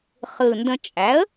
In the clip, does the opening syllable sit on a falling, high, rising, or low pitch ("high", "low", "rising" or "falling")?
low